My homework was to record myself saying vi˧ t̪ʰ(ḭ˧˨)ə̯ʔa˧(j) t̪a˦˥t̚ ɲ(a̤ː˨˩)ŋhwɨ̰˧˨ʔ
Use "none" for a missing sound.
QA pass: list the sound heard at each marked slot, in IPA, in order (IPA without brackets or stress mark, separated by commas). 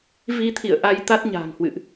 ḭ˧˨, j, a̤ː˨˩